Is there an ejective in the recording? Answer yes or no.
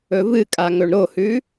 yes